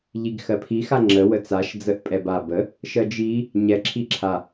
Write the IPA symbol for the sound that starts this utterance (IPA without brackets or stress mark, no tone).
ʎ